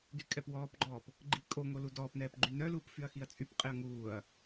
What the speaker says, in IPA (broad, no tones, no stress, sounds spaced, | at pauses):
d y kʼ ɛ p w ɔː p ɡ͡ǃ ɔː p | ɡ͡ǃ i kʼ o ŋ o l u d ɔː p n ɛː p ɡ͡ǃ y n œ l uː p f y ɐ̯ x i ɐ̯ t͡sʼ y p qʼ e ɐ̯ ŋ uː ɐ̯